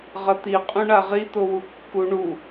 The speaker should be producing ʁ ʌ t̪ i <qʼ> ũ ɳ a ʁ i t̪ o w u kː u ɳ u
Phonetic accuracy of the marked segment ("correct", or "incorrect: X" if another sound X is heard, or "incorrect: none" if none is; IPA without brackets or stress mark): correct